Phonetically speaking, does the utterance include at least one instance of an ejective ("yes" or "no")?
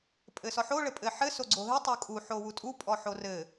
yes